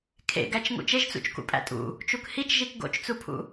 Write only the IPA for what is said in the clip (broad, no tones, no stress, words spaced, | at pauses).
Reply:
kʰḛɡæt͡ʃ ŋṵt͡ʃeʒt͡sṵt͡ʃ kṵpʼæ̰tʼṵ | t͡ʃukhit͡ʃʒik ɡo̰t͡ʃt͡supʰṵ